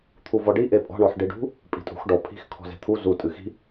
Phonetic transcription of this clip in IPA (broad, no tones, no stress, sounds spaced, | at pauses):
t̪ʰ u v ɔ ɖ i ʔ e pʼ ɔ̤ ɳ ɔ ħ ɖ i ɖ ṳ | pʼ i̤ tʼ ṳ x ɖ ɔ pʰ i̤ x kʰ ɔ̤ z e̤ t̪ʰ u z u tʼ ɨ x i̤